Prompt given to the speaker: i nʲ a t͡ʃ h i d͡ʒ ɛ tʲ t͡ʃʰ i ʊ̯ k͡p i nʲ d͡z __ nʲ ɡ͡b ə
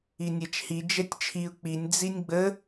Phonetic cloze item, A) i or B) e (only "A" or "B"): A